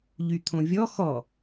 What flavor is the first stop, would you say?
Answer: aspirated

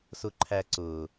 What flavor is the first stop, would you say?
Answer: click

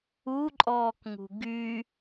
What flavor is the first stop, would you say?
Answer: click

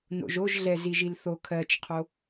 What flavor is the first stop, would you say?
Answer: aspirated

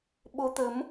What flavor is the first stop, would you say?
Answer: implosive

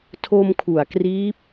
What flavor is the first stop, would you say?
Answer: aspirated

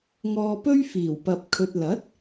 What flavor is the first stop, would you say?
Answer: plain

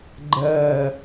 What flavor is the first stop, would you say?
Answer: click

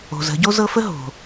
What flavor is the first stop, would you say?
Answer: plain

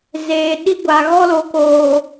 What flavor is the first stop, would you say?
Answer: implosive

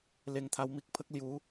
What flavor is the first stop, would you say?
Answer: aspirated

